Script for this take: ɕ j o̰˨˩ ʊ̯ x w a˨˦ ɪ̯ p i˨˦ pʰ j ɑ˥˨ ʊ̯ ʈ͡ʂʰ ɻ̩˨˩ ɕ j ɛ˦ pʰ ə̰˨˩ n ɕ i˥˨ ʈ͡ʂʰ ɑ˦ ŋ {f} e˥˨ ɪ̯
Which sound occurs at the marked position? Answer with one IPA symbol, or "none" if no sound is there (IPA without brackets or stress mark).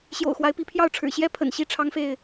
f